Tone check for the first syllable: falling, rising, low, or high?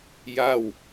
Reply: falling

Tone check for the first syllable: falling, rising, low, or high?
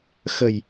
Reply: low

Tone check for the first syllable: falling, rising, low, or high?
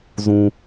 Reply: low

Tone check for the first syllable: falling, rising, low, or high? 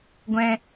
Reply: low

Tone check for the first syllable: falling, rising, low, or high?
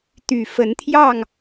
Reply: low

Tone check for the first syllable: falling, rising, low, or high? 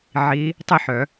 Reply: rising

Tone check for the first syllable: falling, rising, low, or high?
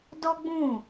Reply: high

